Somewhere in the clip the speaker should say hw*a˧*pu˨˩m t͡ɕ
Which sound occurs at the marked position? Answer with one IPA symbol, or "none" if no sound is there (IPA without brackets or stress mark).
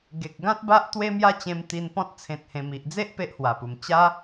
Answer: a˨˩